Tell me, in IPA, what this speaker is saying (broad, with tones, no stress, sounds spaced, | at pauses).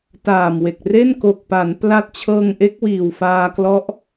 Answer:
t aː˨˩ m w e˨˩ k̚ r e˥˩ n k o˨˩ k̚ p aː˩˦ n p l a˦˥ t̚ t͡ɕʰ ɤː˧ ŋ ʔ e˦˥ k̚ w iː˨˩ w f aː˧ k l ɔ˦˥ ʔ